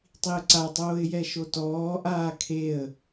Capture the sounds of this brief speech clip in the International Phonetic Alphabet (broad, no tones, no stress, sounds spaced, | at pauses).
tˤ i ə̯ ǀ a tˤ oː ɪ̯ j ɛ ʃ o t ɔː ʔ aː kʰ e ə̯